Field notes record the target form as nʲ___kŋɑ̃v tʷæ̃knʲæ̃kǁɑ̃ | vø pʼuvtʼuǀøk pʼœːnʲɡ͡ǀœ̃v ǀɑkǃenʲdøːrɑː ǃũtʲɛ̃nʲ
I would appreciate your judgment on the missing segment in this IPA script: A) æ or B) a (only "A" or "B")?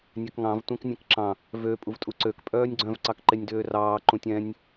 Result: A